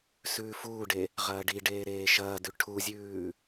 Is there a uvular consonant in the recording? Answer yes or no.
yes